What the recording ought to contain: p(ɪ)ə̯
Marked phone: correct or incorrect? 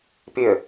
correct